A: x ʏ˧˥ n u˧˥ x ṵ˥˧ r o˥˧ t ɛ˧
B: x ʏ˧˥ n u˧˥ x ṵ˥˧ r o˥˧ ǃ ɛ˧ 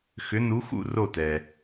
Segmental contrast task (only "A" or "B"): A